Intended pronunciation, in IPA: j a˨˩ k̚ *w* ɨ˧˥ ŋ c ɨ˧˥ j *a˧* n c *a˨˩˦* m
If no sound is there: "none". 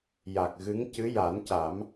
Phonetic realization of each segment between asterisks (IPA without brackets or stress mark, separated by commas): ɣ, a˨˩˦, a˨˩˦